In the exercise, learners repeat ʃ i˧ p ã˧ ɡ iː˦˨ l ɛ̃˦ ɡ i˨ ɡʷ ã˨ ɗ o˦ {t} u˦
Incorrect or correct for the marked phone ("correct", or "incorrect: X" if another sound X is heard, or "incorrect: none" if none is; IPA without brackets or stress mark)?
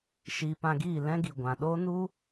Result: incorrect: n